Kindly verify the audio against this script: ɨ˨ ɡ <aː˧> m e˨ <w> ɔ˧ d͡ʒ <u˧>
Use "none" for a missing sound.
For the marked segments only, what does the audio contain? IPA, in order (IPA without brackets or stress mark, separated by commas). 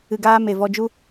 aː˧, v, u˦